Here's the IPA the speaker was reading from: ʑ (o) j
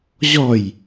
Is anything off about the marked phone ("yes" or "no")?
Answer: yes